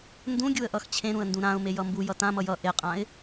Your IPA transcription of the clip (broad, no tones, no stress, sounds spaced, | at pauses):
n d ũ ɡʲ u ə̯ ʔ ʌ x t͡ɕʰ ẽ ɾ ũ ə̯ n d ũ ɾ ã ʊ̯ m e j ʌ m b u j ʌ t ã m ʌ j ʌ ʔ e qʼ ã ɪ̯